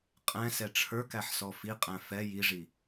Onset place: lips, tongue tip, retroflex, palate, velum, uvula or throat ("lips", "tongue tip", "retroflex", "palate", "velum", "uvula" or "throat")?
uvula